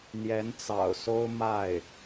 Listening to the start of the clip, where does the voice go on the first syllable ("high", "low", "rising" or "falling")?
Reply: rising